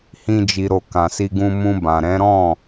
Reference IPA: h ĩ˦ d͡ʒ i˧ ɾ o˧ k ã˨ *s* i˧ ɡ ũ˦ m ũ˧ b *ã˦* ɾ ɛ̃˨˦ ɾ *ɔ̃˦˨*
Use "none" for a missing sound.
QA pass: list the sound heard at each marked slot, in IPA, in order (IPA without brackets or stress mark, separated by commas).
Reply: s, ã˨, ɔ̃˦˨